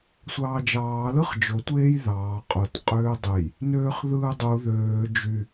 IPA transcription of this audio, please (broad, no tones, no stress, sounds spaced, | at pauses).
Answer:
sʷ ɑː d͡ʒ ɑː l ɯ χ d͡ʒ o tʷ eː j ð ɑː qʼ o t qʼ øː dˤ e j | n øː χ ð ɯː dˤ u ð øː d͡ʒ y